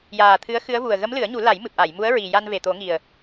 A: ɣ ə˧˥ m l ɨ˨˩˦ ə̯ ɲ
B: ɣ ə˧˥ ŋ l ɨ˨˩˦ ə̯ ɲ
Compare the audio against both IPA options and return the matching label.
A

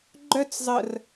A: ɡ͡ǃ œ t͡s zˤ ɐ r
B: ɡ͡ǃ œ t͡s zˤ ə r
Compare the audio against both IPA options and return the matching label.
B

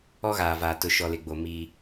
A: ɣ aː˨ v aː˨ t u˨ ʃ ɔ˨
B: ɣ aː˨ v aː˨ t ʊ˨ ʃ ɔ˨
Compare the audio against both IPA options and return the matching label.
B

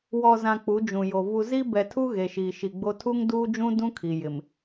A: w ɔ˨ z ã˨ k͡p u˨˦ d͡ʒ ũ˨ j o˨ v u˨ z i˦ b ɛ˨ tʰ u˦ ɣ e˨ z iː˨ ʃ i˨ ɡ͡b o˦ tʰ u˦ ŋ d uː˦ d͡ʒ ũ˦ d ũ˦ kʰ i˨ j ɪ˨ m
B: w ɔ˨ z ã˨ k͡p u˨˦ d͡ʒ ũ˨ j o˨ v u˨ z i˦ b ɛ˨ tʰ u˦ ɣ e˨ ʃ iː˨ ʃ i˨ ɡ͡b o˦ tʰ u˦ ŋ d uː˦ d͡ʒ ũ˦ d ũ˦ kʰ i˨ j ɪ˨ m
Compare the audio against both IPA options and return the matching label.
B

